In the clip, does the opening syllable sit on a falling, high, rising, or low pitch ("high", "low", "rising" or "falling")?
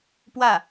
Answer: falling